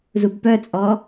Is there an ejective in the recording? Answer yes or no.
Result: yes